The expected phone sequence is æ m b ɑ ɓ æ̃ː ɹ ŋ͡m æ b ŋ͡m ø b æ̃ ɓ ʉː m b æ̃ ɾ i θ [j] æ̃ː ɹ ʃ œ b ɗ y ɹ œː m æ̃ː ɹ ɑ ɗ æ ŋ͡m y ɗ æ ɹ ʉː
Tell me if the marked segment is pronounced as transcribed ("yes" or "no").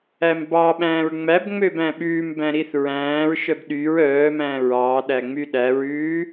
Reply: no